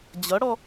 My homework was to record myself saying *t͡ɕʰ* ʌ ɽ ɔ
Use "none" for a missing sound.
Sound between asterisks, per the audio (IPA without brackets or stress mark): d͡ʑ